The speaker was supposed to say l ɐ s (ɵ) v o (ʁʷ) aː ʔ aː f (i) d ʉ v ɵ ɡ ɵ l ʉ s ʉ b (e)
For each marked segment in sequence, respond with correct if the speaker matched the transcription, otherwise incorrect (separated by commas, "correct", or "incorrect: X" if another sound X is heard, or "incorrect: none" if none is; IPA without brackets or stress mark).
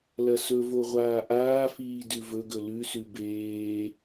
correct, correct, incorrect: iː, incorrect: eː